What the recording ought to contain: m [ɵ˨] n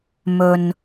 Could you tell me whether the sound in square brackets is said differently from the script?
no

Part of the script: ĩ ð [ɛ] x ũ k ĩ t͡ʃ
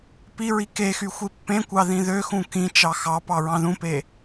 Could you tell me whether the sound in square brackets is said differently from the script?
yes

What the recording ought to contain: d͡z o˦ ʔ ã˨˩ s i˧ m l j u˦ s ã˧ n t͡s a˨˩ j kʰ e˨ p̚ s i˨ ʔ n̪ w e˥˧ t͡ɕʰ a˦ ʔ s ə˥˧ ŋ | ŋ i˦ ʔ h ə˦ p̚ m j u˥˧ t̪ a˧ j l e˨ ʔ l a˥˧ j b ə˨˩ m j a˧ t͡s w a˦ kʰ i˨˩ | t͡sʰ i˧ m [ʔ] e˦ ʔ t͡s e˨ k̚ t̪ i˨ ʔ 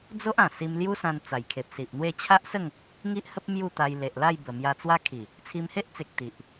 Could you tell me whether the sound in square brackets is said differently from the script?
yes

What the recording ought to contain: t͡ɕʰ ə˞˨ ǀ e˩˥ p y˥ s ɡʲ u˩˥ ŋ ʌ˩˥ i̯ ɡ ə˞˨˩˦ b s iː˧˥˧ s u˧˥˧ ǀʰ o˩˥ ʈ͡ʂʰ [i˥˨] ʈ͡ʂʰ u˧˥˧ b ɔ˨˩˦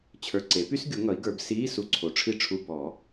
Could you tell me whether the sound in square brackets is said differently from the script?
no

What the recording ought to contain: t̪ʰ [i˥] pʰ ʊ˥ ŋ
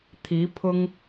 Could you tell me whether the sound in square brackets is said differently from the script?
yes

